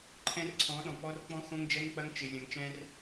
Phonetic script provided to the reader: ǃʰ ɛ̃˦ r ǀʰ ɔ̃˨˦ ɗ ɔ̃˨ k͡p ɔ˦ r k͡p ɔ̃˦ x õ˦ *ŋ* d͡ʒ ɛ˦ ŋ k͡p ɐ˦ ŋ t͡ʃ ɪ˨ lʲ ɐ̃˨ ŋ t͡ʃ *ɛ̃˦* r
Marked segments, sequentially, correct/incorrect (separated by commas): correct, correct